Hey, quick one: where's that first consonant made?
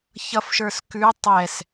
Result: palate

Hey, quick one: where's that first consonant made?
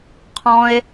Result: uvula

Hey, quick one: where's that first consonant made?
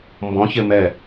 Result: lips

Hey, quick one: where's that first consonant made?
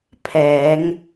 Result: lips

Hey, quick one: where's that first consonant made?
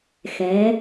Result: velum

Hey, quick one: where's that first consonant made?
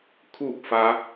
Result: velum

